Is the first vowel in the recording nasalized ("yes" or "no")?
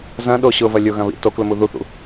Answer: yes